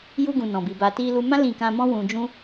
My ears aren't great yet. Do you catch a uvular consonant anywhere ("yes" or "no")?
no